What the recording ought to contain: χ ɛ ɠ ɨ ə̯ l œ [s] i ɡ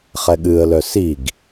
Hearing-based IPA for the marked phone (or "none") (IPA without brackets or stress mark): s